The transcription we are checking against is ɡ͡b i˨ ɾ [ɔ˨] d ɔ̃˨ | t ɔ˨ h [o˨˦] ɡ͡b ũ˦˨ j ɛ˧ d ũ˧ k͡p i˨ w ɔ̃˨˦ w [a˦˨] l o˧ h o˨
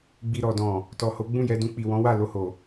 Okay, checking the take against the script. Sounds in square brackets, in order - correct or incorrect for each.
correct, correct, correct

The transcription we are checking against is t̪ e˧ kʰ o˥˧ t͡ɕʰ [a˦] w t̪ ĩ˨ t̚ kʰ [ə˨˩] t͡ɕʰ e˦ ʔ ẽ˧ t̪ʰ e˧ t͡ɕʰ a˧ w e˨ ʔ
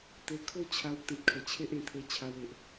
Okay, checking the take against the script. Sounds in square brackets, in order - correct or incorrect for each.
incorrect: a˧, correct

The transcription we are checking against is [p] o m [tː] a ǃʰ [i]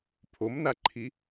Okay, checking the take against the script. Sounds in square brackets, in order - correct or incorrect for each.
incorrect: pʰ, incorrect: n, correct

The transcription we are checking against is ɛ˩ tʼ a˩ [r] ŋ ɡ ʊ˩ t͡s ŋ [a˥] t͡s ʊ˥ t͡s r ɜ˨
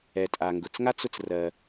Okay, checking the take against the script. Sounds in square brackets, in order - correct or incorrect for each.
incorrect: none, correct

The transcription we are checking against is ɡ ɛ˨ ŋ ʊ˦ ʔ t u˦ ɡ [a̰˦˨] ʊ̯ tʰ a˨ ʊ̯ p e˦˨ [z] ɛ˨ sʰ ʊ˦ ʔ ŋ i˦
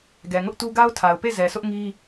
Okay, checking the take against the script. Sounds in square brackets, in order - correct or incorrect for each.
incorrect: a˦, correct

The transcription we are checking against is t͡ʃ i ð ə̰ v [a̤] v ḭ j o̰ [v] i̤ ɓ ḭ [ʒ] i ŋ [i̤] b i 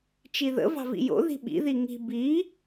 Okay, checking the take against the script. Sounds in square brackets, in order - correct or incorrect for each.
incorrect: ɑ̤, incorrect: ð, incorrect: ð, correct

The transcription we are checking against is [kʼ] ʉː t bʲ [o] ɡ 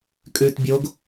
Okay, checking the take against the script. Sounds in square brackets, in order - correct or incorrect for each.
correct, correct

